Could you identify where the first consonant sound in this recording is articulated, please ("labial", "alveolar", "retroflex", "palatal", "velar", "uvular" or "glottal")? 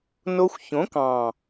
alveolar